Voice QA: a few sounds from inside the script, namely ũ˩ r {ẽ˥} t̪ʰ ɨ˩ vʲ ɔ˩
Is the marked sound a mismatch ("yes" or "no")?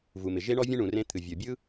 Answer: no